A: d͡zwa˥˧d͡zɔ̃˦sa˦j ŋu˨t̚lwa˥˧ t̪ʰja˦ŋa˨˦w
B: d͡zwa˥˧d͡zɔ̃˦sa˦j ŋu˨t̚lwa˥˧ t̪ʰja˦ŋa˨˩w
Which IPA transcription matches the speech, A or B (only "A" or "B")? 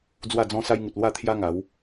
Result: A